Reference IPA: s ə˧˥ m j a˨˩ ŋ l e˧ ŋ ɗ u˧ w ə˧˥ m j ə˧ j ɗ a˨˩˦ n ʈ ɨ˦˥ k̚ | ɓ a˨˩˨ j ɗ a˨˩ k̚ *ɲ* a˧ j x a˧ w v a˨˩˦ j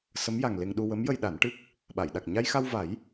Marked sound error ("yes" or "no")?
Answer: no